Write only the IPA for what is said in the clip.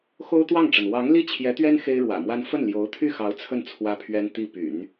xo˥ʊ̯t̪wɑ˥˩ŋʈ͡ʂə˩n wɑ˧˥ŋli˥˩ t͡ɕʰjɛ˧˥t̪ɥɛ˥n xe˥ɪ̯ɻwä̰˨˩mwa˥n fə˥˩nljo˧˥ʊ̯t̪ʰy˥˩xɑ˧˥ʊ̯ t͡sʰə˥˩n t͡sʰwä˥pʰɥɛ˥n t̪i˥˩py̰˨˩˦n

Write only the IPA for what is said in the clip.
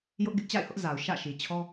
jʊ˦ʔɡɪ˦ʔ t͡ɕa̰˦˨ɪ̯hʊ˦ʔza˨ʊ̯ ʃä̰˦˨ʃi˨t͡ɕʰɔ˦

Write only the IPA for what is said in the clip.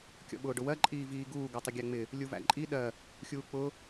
kʲɔ̰ɓʊːɖʊwɜ ǃʼiːviːɡuː ɡɔtˤəɡʲæŋ͡mɪ | lʲuvæ̰ǃʼi ɗɜ | xʲuːk͡pʊ

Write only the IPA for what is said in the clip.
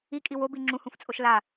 ikʼi wobi ŋ͡ǁũhũft͡sʼoʃ la

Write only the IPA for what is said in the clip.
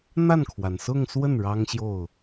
n̪a˥˩nkʰwa˩nsʊ˥˧ŋswə˥˩n ɻɑ˥ŋɕjo˥˩ʊ̯

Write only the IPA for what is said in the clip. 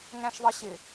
ŋæ̃ʃðˤʌɕɪ

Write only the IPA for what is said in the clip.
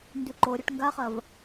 ndʉǃoɾʲɐʈ ŋɡaχɐv

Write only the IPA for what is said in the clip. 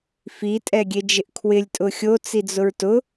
fi tʼɛɡʲed͡ʒɪʔkʰwɪlʲ tʼʊxʲo t͡sid͡zʊɹtʊ

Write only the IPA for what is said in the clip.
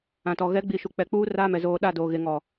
ã˨tɔ˨ ɣɛ˨˦ɡ͡bi˨ʃu˨ k͡pɛ˨k͡puː˦ raː˦mɛ˨ zoː˨ɗa˦˨ doː˨ ɣe˨ ŋɔ˨

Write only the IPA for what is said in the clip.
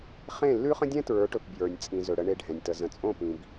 χẽ˦˨ lːʉ˦χə̃˦ dʲɛ̃˦tɹə˞˨˦ʈɵ˨p bjə˞˨nʲ t͡sʼĩ˨zɵ˨ ɽə˨ɳe˨ ɖʱɛ̃˨nʲtə˨ zə̃˨t͡sʼõ˦˨pĩ˨b

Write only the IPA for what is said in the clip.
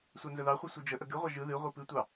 sʷanzəðɑχʷɨ sʷid͡ʒəʔə ɡɨʁʷa ʒɯ ðɨ ʁʷipɨtʷɑ

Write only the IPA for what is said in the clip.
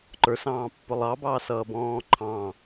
ǃə˞sɑ̃ːpːʊ lˠɑbɑːsʌːbɔ̃ː ǃʰɑ̃

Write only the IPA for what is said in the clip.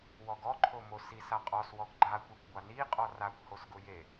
wɔɡɔǃʰomo sisaqʼɔswɔɡ ɡ͡ǃakʷikʷɡʷa niqʼɔ rakʷhosɡʊ je

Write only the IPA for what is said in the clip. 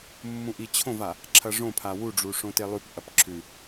mːũʔit͡ɕʰõva | ǁʰɐʐõpʰa wuɖ͡ʐu ʂõtelˠʉpʔɐp ǁʰʉ

